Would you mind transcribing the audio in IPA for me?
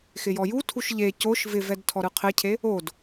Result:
x ɪ j ɔ j u tʰ u ʃ ʎ e c o ʃ v ɪ v ɛ d tʰ ɔ ɾ ɯ qʰ ɪ cʰ e | o d

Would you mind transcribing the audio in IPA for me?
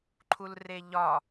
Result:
ǃʰ u l r e ʎ ɒ

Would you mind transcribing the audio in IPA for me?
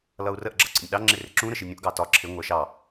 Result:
l ʌ u̯ r ə ʔ ɡ͡ǁ ʌ ǀ ə̰ nʲ ɗ ɑ ŋ͡ǁ ɪ r ɪ ǁ ũ ɾ ə ʃ i nʲ ũ ʔ ɡ ɑ t ɒ ǁʰ ɪ ŋʷ ɜ ʃ ɑ

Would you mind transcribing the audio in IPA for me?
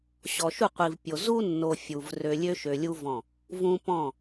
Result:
ɕ ɔ˨ ʃ u˦˨ qʷ i˨ v pʲ o˨ z u˦ nː o˨ fʲ u˨ v r ø˨ lʲ ø˦ ʃ ø˨ lʲ u˦ v ɔ̃˦˨ | v ũ˦ p ɔ̃˦˨

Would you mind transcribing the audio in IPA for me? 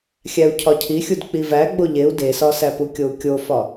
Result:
xʲ æ u̯ cʰ ɒ cʰ i xʲ u d k͡p i v æ ɡ͡b o ʎ e u̯ d e s ɒ s æ p u kʲ o u̯ kʲ o f ɒ

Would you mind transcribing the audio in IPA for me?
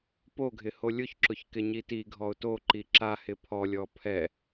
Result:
p o ɡʱ ɪ h o lʲ ʊ ç ǁ ʊ ç k ɪ ɲ i t i ɡʱ ɔ ʊ̯ t o ǃ i ǁ a h ɪ pʰ ɔ lʲ ɔ pʰ ɛ

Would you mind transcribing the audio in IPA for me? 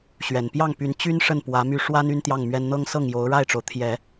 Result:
ɕ ɥ ɛ˨˩ n p j ɑ˥˩ ŋ p y˧˥ n t͡ɕ y˥ n ʂ ə˥˩ n p w ä˧˥ m y˥˩ ʂ w a˥ n y˥ n t̪ j ɑ˥˩ ŋ m ɥ ɛ˥ n n̪ ɤ˥ ŋ s ɤ˥˩ ŋ j o˧˥ ʊ̯ ɻ a˥˩ ɪ̯ ʈ͡ʂ o˩ ʊ̯ t̪ʰ j ɛ˨˩˦

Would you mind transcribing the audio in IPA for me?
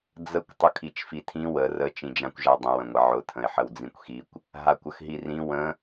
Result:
d͡z ə kʷ tˤ ʊ kʰ i t͡ʃ f i tʰ ĩ w ə r ə t͡ʃ ĩ d͡ʒ ã kʷ ʒ a dˤ ə̃ w ə̃ ŋʷ ə ʕ ʊ tʰ ə̃ ɪ̯ ħ ə w d͡z ĩ kʷ x i kʷ | ɦ a kʷ ə x ɦ i r ĩ w ə̃

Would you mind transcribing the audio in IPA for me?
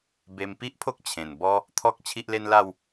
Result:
b e˧ m p i˦ ʔ pʰ o˦ k̚ t͡ɕʰ ẽ˨˩ n b ɔ˦ | t̪ʰ ɔ˦ k̚ t͡ɕʰ i˦ ʔ l e˦ n l a˥˧ w

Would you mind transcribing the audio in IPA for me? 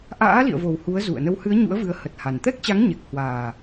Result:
ʔ a̰ː˧˥ l ḭ˧˨ ə̯ v o˨˩ w h u˨˦ ə̯ z ṵ˧˨ ə̯ n ə˨˦ w h ɨ˨˦ ə̯ ɲ ṵ˧˥ ə̯ v ɨ˨˦ ə̯ h ə˨˩ t̚ h a˨˩ n t̪ ɛ˦˥ k̚ t͡ɕ a˨˦ ŋ ɲ ɛ˨˩ k̚ h w aː˨˩

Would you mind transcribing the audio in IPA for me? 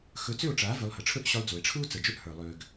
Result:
x ɵ˧ t͡s ʏ˦˨ o̯ ʈ͡ʂ aː˨˦ v ʏ˧ lˠ h ə˨ ʈ͡ʂʰ ɵ˦ ʔ ɕ ʏ˦ lˠ d͡z u˨ e̯ ʈ͡ʂʰ u˦ t͡s ə˨ d͡ʒ ɵ˦ ʔ h ə˞˨ lˠ ʏː˨ ɡ

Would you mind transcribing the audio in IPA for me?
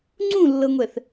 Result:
ŋ͡ǀ ũ lː ɤ ŋʷ ɛ θ

